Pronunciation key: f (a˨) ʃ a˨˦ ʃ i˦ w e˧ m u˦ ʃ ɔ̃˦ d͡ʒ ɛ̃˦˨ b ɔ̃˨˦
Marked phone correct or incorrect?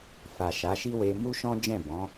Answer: correct